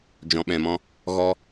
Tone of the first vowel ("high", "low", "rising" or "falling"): low